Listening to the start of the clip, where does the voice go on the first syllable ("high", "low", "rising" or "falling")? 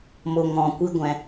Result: low